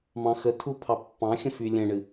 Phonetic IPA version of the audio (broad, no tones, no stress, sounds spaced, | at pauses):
m ɑ̃ x ə tʰ u pʰ ɑ pː ɑ̃ xʲ ə̃ f y lʲ ɛ̃ ɳ ɨ